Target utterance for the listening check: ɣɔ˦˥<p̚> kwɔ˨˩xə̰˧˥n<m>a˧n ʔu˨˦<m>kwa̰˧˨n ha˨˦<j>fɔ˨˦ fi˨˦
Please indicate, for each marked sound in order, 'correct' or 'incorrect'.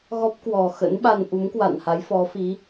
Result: correct, incorrect, correct, correct

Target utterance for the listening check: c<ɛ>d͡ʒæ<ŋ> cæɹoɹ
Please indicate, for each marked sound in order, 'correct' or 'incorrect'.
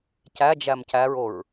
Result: incorrect, incorrect

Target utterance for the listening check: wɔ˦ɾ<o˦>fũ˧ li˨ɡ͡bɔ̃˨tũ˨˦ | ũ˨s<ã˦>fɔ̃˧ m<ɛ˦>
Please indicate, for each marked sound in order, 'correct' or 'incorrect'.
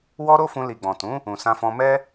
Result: correct, incorrect, correct

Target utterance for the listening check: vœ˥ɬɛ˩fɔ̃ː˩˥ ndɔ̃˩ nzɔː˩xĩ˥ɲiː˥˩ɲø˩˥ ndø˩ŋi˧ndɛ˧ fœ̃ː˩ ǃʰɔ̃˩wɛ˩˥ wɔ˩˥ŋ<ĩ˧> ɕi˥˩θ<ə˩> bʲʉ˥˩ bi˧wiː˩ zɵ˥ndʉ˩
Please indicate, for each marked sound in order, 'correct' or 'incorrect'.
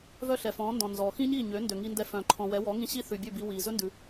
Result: correct, incorrect

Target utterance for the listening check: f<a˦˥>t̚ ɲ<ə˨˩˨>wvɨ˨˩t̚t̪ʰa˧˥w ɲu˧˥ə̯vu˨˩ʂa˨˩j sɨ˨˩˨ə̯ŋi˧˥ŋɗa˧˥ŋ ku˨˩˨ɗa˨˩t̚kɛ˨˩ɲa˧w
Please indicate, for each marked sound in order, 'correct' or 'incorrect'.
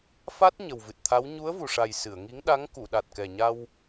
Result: correct, incorrect

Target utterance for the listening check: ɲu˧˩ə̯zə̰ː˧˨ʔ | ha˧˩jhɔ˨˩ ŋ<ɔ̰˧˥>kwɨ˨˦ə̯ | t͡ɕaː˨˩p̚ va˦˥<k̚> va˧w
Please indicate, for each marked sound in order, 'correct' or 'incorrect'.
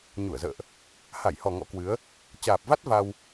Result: correct, incorrect

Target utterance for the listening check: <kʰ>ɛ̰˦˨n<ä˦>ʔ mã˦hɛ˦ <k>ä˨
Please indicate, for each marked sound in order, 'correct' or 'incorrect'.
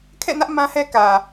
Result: correct, correct, correct

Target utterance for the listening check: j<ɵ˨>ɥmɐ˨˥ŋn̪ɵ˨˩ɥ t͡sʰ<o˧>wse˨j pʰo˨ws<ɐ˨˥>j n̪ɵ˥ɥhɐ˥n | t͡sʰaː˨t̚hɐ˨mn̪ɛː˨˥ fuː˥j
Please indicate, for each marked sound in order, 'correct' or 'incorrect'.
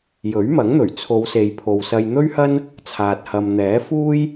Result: incorrect, incorrect, incorrect

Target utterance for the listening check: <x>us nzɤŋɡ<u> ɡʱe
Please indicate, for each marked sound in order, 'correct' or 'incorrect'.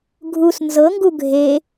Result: incorrect, correct

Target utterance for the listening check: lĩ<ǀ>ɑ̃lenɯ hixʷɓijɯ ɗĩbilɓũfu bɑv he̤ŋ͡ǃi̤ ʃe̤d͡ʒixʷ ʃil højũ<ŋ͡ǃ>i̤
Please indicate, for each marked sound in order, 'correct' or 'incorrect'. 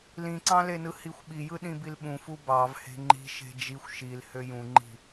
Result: correct, correct

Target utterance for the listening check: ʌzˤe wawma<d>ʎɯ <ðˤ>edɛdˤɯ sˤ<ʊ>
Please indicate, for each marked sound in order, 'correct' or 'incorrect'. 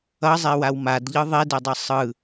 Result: correct, correct, incorrect

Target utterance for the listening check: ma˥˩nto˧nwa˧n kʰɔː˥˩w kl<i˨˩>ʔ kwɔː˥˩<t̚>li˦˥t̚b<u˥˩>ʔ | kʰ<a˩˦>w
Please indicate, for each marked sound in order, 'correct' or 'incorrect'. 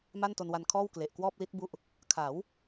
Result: incorrect, incorrect, incorrect, correct

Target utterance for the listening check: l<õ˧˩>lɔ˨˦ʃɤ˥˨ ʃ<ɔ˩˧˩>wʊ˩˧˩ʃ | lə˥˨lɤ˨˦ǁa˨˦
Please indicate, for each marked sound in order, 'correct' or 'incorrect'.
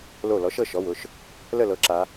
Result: incorrect, correct

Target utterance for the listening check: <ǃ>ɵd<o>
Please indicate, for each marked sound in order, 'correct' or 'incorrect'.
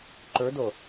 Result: correct, correct

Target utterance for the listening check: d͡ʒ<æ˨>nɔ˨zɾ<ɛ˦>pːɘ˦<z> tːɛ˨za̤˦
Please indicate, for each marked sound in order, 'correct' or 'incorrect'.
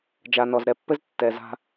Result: incorrect, incorrect, correct

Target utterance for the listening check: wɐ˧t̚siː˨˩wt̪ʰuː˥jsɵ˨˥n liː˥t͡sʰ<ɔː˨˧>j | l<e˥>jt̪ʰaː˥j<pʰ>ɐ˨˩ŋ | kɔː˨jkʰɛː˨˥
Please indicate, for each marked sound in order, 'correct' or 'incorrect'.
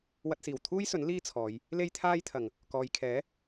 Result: correct, correct, incorrect

